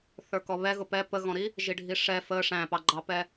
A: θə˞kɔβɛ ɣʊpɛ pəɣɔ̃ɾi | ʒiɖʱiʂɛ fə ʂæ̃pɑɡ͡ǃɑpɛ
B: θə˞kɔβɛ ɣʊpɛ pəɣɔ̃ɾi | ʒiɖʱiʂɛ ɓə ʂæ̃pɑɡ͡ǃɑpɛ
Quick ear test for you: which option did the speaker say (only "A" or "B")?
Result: A